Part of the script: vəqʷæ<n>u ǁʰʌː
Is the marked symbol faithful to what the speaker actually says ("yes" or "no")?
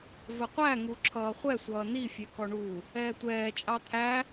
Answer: no